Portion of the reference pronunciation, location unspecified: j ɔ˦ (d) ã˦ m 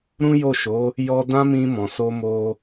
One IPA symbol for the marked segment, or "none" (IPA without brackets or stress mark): d